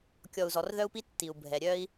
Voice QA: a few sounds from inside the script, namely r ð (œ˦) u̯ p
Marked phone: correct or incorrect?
correct